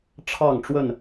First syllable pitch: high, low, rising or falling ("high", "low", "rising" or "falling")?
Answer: falling